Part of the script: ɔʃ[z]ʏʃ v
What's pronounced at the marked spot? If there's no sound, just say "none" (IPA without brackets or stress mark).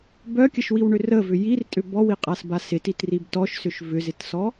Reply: s